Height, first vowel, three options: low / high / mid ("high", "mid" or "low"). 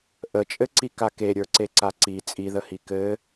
mid